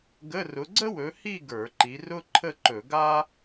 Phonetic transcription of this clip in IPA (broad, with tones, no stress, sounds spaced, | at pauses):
ɡ ə˧˥˧ r ʊ˨˦ ɡ͡ǀ ə˥ w ɵ˨˦ h i˥˧ ɡ ə˞˧˩˧ ǃ i˨˦ r ʊ˥ ǃʰ ə˥˧ ǃ ɵ˧˩˧ ɡ a˥